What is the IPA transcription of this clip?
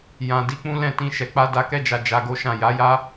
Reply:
j ã˨ d i˧ k͡p ũ˦ l ɛ̃˦˨ t ĩ˧ ʃ ɛ˨ k͡p a˧ d a˧ k ɛ˦ d͡ʒ a˧ d͡ʒ a˧ ɡ o˦ ʃ ã˦˨ j a˨˦ j a˦

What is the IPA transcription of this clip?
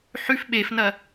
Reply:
ħ ʉ f ɓ e f n ɐ

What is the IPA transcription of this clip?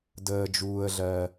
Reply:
d əː˦ d͡ʒ uː˦ ə̯ ɮ ɜ˦

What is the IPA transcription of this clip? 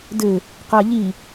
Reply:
d ɘ | q a ʎ i

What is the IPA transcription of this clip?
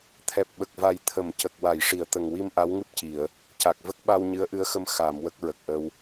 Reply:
t̪ʰ ɛ˨˩ p̚ ɓ ə˨˩ k̚ v a˨˩ j t̪ʰ ə˨˩˨ m c ə˨˩ k̚ w a˨˩˨ j ʂ i˨˩˨ ə̯ t̪ ə˨˩ ŋ w i˧ m ʔ a˧˥ w ŋ ɨ˦˥ p̚ c i˨˩˨ ə̯ | c a˨˩ k̚ v ə˦˥ k̚ ɓ a˧ w ɲ ɨ˧˥ ə̯ ʔ ɨ˧˥ ə̯ x ə˧ m x a˨˩˨ m w ə˦˥ k̚ ɹ ə˨˩ k̚ ʔ ə˧ w

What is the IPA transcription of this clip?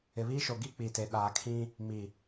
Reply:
ɪ˨ β iː˦ ʃ o˨ ɡ i˦ k͡p i˨ t e˨ ɗ aː˨ kʰ ĩ˦ | m i˨

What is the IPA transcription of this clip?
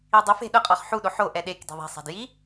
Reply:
i dˤ ʊ f e̤ ɗ ʊ qʼ ɔ χ ħ u ɗ o ħ o ʔ ɛ ɗ e k d e̤ ðˤ e̤ sˤ a̤ d j i

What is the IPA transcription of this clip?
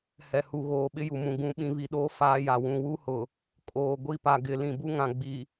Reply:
h ɛ˨ h u˨ ɣ oː˨ ɓ ɪ˦ j u˨ m ũ˨ ɡ ũ˨˦ ɓ ĩ˨ β i˨ ɗ oː˦ f aː˦ j a˨ w ũ˨ w u˦ h ʊ˨ | kʼ oː˨ ɡʷ i˦˨ p a˨ ɡ ɪ˨ l ĩ˨ b u˦ ŋ ã˨ ɡ͡b i˨

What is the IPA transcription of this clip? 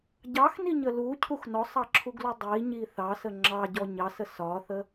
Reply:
ɟ ɑ x n i ɲ ə l u cʰ u x n ɔ sˤ ɑ ǁʰ u ɡ l u dˤ i ɲ i θ ɑ s ə ŋ͡ǁ ɑ ɟ ɔ ɲ ɑ s ə s ɒ θ ə

